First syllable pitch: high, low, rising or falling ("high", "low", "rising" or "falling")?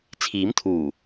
rising